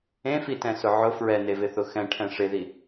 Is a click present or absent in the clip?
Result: absent